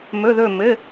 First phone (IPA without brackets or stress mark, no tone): m